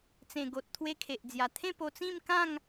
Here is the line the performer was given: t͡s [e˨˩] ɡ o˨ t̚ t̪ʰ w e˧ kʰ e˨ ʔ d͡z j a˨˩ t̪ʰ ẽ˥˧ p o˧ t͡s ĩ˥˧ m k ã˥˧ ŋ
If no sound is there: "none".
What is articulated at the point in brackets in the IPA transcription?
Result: ẽ˨˩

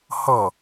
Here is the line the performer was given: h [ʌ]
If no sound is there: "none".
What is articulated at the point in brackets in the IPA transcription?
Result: ʌ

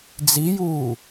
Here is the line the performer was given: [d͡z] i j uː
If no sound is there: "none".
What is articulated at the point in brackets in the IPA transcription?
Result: d͡z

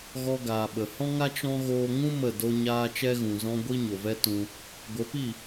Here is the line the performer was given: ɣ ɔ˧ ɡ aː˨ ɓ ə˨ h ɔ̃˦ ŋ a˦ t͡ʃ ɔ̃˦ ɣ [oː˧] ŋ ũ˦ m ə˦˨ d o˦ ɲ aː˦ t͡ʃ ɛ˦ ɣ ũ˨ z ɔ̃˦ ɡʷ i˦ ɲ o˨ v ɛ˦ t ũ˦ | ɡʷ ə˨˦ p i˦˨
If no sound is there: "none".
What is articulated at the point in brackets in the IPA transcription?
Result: oː˧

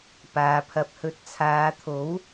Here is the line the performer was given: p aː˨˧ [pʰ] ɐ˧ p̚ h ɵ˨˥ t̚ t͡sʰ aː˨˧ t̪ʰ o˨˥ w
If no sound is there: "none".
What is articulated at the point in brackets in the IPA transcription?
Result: pʰ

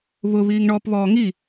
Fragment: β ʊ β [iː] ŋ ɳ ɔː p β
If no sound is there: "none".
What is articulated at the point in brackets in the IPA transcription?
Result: iː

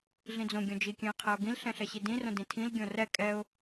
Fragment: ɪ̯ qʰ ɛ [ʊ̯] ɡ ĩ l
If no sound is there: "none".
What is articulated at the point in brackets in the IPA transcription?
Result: ʊ̯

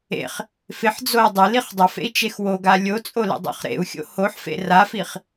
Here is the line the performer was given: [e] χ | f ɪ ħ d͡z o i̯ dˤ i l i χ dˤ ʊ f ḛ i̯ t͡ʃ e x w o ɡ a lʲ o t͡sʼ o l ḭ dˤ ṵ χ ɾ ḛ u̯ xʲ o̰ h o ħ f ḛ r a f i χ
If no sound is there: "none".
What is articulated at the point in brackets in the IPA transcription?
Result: ḛ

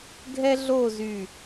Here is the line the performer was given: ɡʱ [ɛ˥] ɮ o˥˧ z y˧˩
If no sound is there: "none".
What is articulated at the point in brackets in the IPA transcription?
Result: ɛ˥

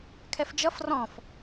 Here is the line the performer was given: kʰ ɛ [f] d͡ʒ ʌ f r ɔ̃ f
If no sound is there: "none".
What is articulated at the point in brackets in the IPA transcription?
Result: f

